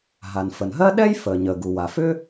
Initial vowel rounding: unrounded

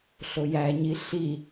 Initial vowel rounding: rounded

